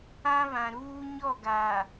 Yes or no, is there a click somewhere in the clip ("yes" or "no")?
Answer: no